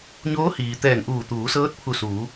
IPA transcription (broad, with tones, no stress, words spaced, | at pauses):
ɲoː˧˥hiː˩ t̪ɛː˧˩ŋʔuː˧˩ t̪uː˩˧sɤː˧˥t̚ pʰu˧˩suː˩˧